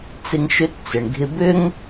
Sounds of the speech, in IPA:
t͡s ɪ˧ ŋ ʃ ʏ˧˥ t t͡s ɪ˩ ɳ ɡʱ ɪ˧ b ʏ˥ ŋ

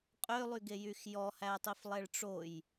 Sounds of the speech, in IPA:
qʼ ø lˠ y ɡ e j y x j ɔ h æ tˤ i f lˠ ɛ ɭ ʈ͡ʂ o j

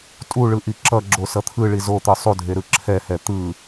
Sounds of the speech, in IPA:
tʼ u ɭ ɯ ʔ i ǁ ʌ ɡ͡ǁ o s ʌ t̪ʰ ɯ ɭ i z o t̪ ɯ sˤ u dʱ e ɾ ɯ ǁʰ ɛ h ɛ t̪ ɯ

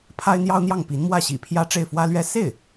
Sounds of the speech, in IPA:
pʰ a˥ ɪ̯ n̪ j ɑ˥ ʊ̯ n̪ j ɑ˥˩ ŋ p i˧˥ n m w ä˥˩ ɕ ḭ˨˩ pʰ j ä˥˧ ʈ͡ʂ e˥˩ ɪ̯ f w ä˥ l ɥ ɛ˥ s e˥˩ ɪ̯

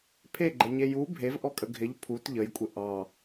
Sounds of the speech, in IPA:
pʰ e ɡ͡ǃ ə ɲ e j u bʱ e v ʔ ɔ kʼ ə ɡʱ ɪ ʎ pʰ u t ʎ ə j kʷʼ ɪ ʔ ɑ

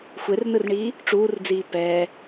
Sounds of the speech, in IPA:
xʷ e r n ɯ r ɳ iː | ʈ͡ʂ uː r d͡z iː p ɛː

